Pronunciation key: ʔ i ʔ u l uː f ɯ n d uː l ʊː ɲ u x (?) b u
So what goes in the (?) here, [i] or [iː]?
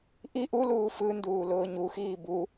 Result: iː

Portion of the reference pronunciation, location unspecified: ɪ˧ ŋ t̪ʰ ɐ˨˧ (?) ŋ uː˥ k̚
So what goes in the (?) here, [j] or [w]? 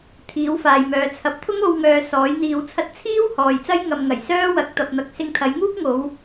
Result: j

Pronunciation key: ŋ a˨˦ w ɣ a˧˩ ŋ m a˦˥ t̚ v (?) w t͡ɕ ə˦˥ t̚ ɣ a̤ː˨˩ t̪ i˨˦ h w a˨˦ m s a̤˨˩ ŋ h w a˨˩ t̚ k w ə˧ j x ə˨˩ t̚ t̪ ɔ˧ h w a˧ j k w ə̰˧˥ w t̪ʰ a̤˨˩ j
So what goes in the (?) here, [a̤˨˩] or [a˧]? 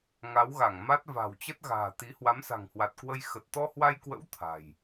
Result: a̤˨˩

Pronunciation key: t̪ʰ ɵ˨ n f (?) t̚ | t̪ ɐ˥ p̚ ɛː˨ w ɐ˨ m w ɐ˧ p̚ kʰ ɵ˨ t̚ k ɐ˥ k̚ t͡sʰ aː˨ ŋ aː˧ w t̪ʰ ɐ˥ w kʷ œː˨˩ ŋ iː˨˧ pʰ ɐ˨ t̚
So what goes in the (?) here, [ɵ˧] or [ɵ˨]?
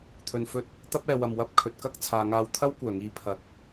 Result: ɵ˧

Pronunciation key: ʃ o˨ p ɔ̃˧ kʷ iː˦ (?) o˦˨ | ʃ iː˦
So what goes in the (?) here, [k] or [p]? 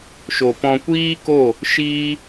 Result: k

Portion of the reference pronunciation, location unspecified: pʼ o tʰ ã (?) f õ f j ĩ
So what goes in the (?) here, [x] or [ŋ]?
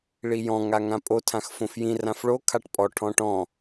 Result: x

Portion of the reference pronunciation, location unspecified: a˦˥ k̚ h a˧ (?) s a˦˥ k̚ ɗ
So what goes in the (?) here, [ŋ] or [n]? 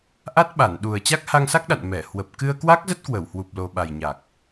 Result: ŋ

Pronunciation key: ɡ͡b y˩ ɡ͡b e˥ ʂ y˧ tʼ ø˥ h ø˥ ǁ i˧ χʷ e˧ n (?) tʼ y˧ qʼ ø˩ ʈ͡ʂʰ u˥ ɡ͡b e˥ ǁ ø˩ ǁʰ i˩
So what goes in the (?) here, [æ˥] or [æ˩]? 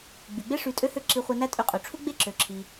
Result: æ˥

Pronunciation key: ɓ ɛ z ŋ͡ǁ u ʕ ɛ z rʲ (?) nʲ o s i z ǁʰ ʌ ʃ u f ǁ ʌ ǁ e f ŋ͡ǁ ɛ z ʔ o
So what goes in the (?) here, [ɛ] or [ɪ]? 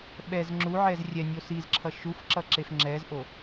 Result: ɛ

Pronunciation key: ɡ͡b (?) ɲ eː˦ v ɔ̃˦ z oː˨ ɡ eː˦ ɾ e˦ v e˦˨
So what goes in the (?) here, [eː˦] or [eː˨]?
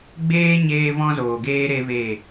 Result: eː˦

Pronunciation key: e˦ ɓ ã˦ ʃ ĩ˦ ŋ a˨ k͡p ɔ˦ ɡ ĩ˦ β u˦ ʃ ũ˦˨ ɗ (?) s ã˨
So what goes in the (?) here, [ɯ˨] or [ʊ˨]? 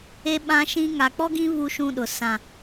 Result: ʊ˨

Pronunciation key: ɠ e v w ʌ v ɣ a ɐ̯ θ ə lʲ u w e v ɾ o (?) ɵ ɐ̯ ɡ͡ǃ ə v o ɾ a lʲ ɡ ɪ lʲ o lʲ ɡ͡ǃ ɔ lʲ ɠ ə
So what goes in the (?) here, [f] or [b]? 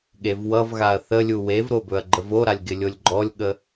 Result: b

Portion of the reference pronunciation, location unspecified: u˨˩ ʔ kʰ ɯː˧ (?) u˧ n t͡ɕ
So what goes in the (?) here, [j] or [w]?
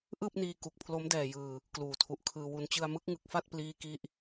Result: w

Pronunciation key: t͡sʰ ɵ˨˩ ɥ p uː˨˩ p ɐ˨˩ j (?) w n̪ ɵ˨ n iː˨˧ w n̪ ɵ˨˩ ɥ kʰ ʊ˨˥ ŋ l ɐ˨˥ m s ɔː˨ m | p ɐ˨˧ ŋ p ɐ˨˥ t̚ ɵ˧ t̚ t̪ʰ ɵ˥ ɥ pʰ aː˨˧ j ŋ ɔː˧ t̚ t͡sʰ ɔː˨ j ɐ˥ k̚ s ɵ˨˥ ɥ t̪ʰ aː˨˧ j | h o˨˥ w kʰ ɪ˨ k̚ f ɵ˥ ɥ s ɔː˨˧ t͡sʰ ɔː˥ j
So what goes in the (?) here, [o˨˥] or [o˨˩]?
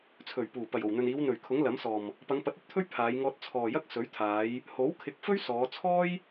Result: o˨˩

